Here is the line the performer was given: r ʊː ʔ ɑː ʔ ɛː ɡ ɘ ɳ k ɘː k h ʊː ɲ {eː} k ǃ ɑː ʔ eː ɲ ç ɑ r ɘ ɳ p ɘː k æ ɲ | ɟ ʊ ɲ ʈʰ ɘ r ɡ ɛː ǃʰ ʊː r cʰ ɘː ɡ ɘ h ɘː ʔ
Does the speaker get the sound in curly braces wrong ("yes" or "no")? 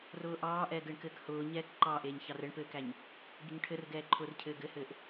yes